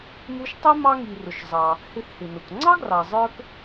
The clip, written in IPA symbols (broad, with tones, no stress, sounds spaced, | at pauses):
m u˦ ʃ tˤ i˥ m ɑ˦ ŋ i˨ r ʊ˨ ʃ zˤ ɑ˨ | h ɪ˦ θ h ɪ˨ n ʊ˨ k ŋ͡ǀ ɑ˥ ɡ r ɑ˨ zˤ ə˞˦ k